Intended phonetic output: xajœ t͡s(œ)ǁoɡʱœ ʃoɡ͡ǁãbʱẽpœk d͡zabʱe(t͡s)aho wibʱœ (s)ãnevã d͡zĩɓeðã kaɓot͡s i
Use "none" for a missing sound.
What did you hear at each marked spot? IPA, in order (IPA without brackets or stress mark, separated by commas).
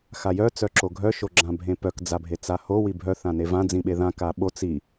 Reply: œ, t͡s, θ